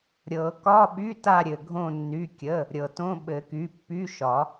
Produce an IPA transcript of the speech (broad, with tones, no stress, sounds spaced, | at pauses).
ɾʲ ɤ˨˩˦ k ɒ˧˥˧ ɓ y˧˥˧ t a˦˨ ɾʲ ɘ˩ ɡʱ õ˦˨ nː y˩˧˩ kʲ ə˩˧˩ | ɾʲ ɤ˩ t õ˧˥˧ ɓ ɘ˨˩˦ k y˩˧˩ pː y˧˥˧ ʃ ɒ˨˩˦